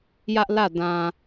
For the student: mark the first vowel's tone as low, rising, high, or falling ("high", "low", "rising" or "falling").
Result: high